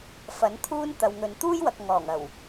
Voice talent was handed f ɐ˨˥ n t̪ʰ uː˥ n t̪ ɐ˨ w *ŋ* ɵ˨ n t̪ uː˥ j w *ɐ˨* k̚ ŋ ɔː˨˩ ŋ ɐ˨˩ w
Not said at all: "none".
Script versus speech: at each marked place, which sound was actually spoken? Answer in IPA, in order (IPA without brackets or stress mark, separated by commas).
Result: ŋ, ɐ˨